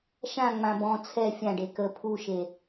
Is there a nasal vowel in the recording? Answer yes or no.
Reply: yes